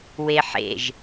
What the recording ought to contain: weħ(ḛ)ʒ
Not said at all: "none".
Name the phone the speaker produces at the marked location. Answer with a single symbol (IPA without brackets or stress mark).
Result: ḛ